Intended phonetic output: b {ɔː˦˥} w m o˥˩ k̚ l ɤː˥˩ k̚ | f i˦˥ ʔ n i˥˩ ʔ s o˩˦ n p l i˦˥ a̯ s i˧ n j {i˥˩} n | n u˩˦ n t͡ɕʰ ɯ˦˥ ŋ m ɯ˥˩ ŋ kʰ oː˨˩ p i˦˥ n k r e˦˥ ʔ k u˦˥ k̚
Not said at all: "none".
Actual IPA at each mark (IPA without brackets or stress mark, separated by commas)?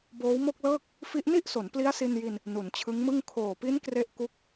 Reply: oː˦˥, i˧